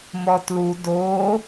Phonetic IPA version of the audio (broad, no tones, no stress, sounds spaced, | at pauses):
m ɔ t l u d o